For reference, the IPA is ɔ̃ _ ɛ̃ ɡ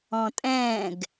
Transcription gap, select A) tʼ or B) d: A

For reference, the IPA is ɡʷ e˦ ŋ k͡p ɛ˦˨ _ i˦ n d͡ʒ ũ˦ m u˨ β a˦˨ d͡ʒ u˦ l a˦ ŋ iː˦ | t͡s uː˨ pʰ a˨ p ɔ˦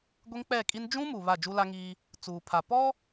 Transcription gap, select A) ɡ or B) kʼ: B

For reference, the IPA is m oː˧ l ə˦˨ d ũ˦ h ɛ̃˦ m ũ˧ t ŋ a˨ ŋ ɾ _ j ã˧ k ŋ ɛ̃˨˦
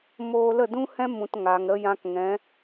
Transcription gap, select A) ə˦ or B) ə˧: B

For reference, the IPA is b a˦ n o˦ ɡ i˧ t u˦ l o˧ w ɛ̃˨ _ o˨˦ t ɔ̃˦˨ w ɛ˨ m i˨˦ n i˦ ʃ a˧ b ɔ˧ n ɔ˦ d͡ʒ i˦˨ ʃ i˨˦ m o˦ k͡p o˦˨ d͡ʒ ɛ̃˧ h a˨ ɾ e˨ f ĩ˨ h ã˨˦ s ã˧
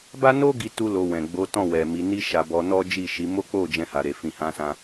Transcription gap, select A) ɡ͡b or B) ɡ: A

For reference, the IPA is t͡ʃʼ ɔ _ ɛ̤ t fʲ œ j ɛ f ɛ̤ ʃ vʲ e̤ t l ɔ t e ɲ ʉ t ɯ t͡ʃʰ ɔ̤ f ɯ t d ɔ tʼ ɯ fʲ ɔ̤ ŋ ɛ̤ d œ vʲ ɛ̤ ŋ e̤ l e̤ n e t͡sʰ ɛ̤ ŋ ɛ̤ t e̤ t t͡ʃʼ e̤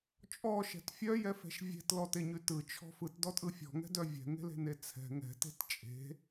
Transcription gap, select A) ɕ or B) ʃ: B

